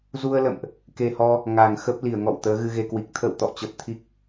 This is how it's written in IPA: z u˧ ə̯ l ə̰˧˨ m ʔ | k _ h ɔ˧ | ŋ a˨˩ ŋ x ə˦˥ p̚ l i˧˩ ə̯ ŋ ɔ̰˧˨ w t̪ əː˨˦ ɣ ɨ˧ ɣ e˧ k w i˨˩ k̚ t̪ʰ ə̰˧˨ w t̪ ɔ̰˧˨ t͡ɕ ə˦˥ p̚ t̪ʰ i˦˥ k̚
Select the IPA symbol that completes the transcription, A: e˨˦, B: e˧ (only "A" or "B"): B